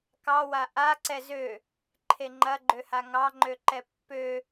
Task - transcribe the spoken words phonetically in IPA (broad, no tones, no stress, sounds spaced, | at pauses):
k ɑ w a ʔ a ǀ ɛ z ø | ǃʰ e ŋ͡ǃ ɐ ɡ͡ǃ ø h a ŋ ɑ ŋ͡ǃ ø ǃ ɛ pː ø